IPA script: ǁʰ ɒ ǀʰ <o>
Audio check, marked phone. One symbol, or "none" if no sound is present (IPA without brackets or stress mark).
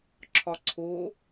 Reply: o